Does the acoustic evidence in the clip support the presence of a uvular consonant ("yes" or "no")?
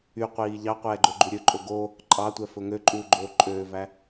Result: yes